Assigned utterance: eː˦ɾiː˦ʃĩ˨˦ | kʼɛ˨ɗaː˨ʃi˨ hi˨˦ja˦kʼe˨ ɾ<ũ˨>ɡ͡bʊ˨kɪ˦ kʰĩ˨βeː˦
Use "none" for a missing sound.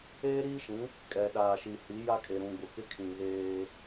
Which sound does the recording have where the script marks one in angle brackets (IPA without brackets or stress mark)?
ũ˨